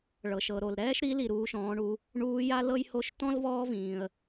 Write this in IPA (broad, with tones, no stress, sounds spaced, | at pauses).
ɭ ɤ˩ ʃ ɤ˩ ɾ o˩ l ɾ ɛː˥ ʃ ɾ i˧˥ l i˩ ɾ uː˩˧ ʃ ɔ̃ː˩˧ ɳ u˩˧ | ɳ uː˧˥ j a˥ l ɤ˥ j h o˧˥ ʃ t̪ ɔ̃˥ l v ɔː˥ v ĩː˩ ə̯